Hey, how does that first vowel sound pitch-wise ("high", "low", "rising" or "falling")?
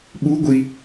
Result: rising